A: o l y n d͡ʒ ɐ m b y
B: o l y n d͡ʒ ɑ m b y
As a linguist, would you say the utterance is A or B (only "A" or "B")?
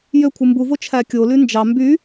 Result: B